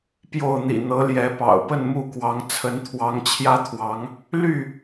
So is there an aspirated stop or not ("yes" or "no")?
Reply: yes